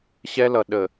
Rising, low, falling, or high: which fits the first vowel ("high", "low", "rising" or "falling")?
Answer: high